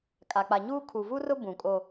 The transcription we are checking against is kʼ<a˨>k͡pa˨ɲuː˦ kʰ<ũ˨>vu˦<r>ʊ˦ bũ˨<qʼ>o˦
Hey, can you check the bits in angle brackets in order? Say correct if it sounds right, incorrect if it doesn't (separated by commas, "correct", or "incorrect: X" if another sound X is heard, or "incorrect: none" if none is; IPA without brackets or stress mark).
correct, incorrect: u˨, correct, incorrect: kʼ